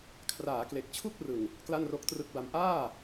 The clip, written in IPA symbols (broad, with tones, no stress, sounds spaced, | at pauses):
kʰ r aː˩˦ k l e˨˩ k̚ t͡ɕʰ u˥˩ k̚ r ɯ˨˩ ŋ | k l a˥˩ n r o˦˥ k̚ t r ɯ˦˥ k̚ b a˧ m ʔ aː˥˩